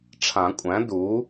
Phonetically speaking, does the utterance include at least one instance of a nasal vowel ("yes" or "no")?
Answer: yes